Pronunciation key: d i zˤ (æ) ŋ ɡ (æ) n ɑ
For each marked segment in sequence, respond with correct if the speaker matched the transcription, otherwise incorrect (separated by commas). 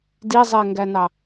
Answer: incorrect, correct